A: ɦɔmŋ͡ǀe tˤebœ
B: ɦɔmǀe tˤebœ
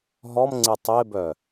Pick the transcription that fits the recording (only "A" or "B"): A